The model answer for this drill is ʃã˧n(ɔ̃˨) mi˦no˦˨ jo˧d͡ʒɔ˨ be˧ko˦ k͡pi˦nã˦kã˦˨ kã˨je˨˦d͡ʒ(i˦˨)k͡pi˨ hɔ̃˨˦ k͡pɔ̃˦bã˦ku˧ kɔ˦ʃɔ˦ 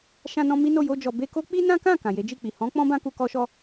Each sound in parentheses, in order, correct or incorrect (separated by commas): incorrect, correct